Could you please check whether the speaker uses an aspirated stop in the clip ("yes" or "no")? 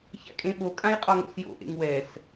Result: no